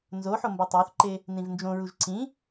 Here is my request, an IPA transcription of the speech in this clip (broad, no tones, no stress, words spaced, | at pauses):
nzoħo mbɒtˤæθǃe | nĩvnd͡ʒõɹuʒ ǀĩ